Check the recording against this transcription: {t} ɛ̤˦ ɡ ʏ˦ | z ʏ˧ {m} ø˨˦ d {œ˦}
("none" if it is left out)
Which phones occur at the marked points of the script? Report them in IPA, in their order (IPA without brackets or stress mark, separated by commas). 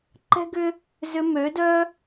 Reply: ǃ, m, œ˦